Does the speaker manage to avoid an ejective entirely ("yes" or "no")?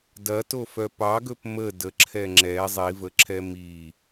yes